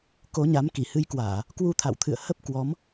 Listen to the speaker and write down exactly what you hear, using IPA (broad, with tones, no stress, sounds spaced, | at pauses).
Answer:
k o˨˦ ɲ a˨˦ m k i˧˩ h ɨ˧ j k w aː˧˩˨ | k w u˧ t̪ʰ a̰˧˨ w t̪ʰ ɨ̰˧˨ ə̯ h ə˦˥ p̚ k w ɔ˨˦ m